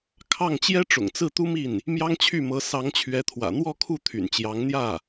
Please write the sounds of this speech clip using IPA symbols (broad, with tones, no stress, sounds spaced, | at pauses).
kʰ ɑ˥˩ ŋ t͡ɕ j ɛ˥ ʈ͡ʂ ʊ̰˨˩ ŋ t͡s ɹ̩˥˩ t̪ u˥ m i˥˩ n | m j ɑ˥ ŋ t͡ɕʰ y˥˩ m ɤ˧˥ s ɑ˧˥ ŋ t͡ɕʰ ɥ ɛ˧˥ t̪ʰ w ä̰˨˩ n̪ w ɔ˥˧ kʰ u˥˩ t̪ʰ y̰˨˩ n t͡ɕ j ɑ˧˥ ŋ n̪ j ä˥˩